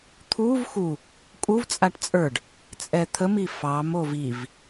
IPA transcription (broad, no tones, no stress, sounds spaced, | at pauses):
t̪ʰ u v x u | kʼ u v t͡sʼ a ʈ t͡sʼ ə˞ ɖ | t͡sʼ ɛ t̪ʰ ə m i f ɑ m o v i v